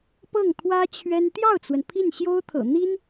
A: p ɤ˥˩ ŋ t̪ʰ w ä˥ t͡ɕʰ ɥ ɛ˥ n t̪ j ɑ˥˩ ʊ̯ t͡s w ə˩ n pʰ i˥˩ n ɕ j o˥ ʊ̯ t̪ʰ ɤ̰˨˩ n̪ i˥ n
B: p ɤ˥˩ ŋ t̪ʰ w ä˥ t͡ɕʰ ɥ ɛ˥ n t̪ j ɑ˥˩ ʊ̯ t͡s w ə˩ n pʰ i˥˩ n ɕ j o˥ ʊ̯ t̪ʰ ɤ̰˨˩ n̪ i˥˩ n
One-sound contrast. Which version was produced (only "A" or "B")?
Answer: A